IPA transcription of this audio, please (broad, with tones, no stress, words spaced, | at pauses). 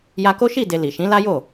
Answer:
ja˧ko˦ʃi˦˨de˨ li˨ʃĩ˨˦la˦jo˦˨